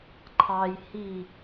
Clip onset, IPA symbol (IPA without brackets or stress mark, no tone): ǃʰ